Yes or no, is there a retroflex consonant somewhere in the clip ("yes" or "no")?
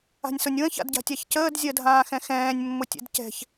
no